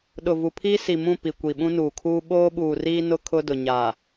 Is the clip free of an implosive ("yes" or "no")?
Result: no